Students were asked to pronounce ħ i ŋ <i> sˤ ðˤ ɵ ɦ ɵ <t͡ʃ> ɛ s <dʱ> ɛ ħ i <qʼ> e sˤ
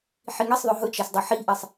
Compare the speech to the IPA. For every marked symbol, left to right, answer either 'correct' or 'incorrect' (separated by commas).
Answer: correct, correct, incorrect, incorrect